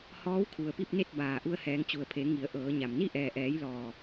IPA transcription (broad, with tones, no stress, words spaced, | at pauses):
hɔː˧˥wkʰu˩ə̯pi˥˨p̚ne˥˨t̚ baː˩ ʔu˧ə̯hɛː˩˧ŋ t͡ɕu˩ə̯pʰe˩˧ ŋi˩˧ə̯ʔɤː˩˧ɲa˩m ni˥˨ʔɛː˩ʔɛː˩˧jlɔː˩